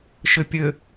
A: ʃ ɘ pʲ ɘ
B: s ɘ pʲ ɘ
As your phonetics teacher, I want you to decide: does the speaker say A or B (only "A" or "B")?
A